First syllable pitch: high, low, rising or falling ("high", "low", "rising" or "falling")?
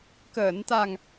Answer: low